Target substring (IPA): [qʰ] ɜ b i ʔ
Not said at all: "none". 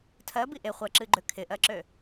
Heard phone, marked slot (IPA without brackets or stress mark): tʰ